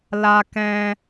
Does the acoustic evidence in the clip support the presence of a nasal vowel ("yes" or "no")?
yes